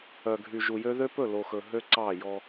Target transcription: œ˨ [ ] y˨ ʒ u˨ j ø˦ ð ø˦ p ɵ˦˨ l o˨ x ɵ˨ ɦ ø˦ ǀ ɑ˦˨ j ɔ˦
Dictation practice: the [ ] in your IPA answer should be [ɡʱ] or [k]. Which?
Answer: ɡʱ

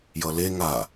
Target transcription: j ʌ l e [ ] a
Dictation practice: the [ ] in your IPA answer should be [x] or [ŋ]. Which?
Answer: ŋ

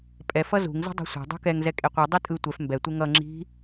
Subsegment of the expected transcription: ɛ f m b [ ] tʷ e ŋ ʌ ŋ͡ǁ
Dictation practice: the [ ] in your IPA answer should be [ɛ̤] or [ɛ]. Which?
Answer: ɛ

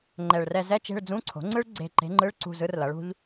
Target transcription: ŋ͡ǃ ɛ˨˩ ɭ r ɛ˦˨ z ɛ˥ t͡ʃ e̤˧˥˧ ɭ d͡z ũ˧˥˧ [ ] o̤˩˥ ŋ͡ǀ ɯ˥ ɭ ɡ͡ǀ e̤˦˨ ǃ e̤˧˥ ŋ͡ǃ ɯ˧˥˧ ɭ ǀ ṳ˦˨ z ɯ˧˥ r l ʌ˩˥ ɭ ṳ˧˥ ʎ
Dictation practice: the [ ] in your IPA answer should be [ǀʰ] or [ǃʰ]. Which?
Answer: ǀʰ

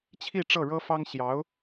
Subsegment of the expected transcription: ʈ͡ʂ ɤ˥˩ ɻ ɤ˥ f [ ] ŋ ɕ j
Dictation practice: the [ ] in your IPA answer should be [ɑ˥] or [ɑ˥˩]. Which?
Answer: ɑ˥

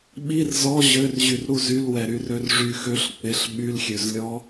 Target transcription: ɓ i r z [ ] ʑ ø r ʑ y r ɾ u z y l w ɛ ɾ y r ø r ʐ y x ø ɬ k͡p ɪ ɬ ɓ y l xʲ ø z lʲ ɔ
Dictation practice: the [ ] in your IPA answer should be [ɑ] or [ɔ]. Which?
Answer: ɔ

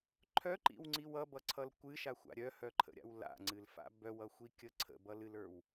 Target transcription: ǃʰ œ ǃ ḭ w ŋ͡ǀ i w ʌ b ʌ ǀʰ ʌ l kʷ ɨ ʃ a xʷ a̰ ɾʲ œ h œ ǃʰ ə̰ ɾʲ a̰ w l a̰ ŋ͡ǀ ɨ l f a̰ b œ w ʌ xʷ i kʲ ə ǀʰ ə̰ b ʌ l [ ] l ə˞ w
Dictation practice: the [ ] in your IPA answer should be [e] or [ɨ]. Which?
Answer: ɨ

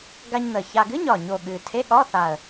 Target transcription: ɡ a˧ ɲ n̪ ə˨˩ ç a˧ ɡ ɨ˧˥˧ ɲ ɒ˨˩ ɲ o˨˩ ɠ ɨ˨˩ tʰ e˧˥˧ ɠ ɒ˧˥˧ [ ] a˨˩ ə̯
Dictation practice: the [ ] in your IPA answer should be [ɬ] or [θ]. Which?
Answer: θ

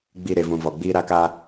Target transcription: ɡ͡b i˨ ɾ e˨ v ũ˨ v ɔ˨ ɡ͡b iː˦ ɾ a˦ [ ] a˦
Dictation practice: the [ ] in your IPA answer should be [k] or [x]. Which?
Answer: k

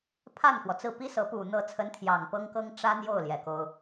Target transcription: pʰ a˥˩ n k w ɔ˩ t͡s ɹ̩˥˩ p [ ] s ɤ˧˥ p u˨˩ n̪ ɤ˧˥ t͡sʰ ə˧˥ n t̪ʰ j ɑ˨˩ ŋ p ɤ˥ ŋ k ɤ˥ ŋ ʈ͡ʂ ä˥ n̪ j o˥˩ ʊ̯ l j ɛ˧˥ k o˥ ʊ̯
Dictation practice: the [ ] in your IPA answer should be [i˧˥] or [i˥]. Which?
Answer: i˥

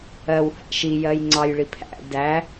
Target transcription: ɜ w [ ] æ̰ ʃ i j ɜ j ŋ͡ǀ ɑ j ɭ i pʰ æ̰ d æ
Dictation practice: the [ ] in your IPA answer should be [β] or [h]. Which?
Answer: h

